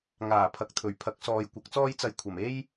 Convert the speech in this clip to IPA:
ŋ aː˨˩ pʰ ɐ˨ k̚ t̪ʰ ɵ˨˩ ɥ pʰ ɐ˨˥ k̚ s ɔː˨ j kʷ ɐ˨˥ k̚ t͡s ɔː˥ j t͡s ɐ˧ j kʷʰ ɐ˨˩ m e˥ j

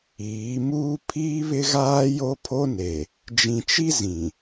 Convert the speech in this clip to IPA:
iː˨˦ m uː˦ pʰ iː˦ β ɪ˦ ɣ aː˦ j o˦ pʰ o˦ n e˨ | d͡ʒ ĩ˨ t͡ʃ i˦ z ĩ˨

